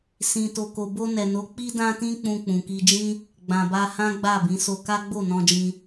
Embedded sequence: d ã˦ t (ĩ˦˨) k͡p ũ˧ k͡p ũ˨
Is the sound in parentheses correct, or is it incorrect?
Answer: incorrect